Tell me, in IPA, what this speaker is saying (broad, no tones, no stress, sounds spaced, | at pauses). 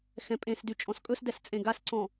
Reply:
x ɛ̃ pʼ ẽ s d y t͡ʃʼ ɔ̃ s kʼ ɵ s d ɛ s t͡sʼ ẽ ɡ a s ǀ ɔ̃